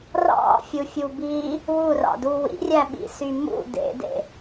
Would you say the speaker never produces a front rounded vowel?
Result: no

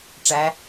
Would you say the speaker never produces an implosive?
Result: yes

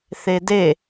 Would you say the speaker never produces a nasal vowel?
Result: yes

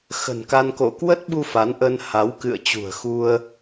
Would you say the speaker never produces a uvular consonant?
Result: yes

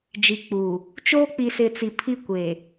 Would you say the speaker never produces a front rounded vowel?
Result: yes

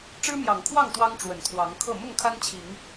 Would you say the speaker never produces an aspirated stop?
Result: no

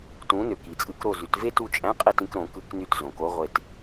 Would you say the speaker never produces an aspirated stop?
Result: yes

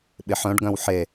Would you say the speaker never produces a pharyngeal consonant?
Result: no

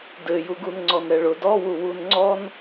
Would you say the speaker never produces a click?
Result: no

